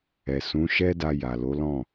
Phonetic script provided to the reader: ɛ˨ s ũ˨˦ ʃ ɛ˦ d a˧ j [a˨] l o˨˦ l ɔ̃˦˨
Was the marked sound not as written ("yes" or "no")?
no